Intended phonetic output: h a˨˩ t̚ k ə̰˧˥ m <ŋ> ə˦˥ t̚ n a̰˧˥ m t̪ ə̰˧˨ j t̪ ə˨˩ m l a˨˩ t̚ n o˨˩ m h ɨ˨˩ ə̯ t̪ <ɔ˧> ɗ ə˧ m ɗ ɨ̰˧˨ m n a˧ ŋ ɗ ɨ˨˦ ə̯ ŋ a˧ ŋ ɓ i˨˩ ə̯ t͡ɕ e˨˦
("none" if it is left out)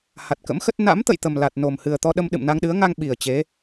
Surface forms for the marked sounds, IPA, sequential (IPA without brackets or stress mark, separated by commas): x, ɔ˧